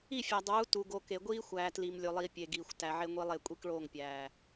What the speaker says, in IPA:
i˦˨fʲæ˨ dˤuː˨˦ tu˨ ɡo˨ke˨ ɡʷiː˦xʷæː˨ tli˨m lʲo˨lˠiː˨ pʲe˨ɡiː˨xʷ tæ˨ʕe˦ŋʷi˦lˠe˦˨ kʷʼi˦kɭoː˦˨ŋpʲæː˨

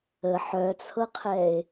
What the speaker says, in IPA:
ə ħœt͡sʰɤqʰɛe̯

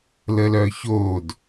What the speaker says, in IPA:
ləlœçod

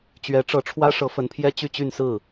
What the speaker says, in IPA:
t͡ɕɥɛ˧˥ʈ͡ʂɤ˧˥ʈ͡ʂʰwä˥ ʂɤ˧˥fə˧˥npʰjɛ˥ t͡ɕy˥˧t͡ɕy˥˧nsɹ̩˥˩

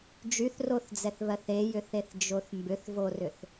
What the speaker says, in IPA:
d͡ʒyθroθd͡zɛθβɜθ ejʏθeθd͡ʒoθ mbʏθvorʏθ

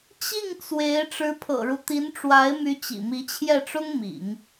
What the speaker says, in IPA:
t͡ɕi˥˩ŋ t͡swe˧˥ɪ̯ ʈ͡ʂɻ̩˧˥pʰɤ̰˨˩ɻu˦ t̪i˧˥nʈ͡ʂwa˧˥ɪ̯my˧˥ t͡ɕḭ˨˩mi˧˥t͡ɕʰjɛ˥˩ʈ͡ʂʊ˥ŋ mḭ˨˩˦ŋ

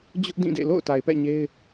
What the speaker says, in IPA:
d͡ʑʊ˦ʔ dĩ˦˨dḛ˦˨ lo̰˦˨ʊ̯ta˨ɪ̯pɛ̰˦˨ ɲe˦ɪ̯

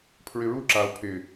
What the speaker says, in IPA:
pʰɹɪɹu ǁao̯ pʰɪ

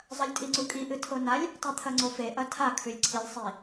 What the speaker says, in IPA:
zˤɐlʲtʼiŋ͡ǀukʼi ʔɨtʰonalʲ | tˤet̪ʰɐŋ͡ǀofe ʔɐtʰa kʰʉlʲǀʰilʲ sˤi

